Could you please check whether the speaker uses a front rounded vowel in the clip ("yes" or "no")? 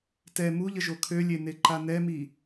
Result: yes